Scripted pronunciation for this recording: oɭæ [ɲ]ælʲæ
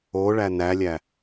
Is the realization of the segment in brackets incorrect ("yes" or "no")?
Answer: yes